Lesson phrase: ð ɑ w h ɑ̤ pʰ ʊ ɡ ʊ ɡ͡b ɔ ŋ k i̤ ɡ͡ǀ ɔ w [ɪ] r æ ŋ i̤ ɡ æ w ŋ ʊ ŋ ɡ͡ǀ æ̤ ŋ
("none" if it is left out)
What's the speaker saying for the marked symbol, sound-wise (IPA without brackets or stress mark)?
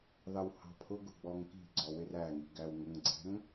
ɪ